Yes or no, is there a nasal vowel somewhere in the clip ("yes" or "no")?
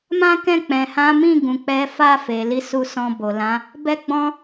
yes